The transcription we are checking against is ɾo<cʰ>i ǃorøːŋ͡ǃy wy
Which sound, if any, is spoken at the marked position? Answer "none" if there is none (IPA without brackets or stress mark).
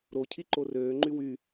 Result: cʰ